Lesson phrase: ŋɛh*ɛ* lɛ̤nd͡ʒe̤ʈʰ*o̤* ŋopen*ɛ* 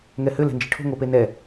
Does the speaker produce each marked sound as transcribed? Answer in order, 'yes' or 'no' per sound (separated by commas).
no, yes, yes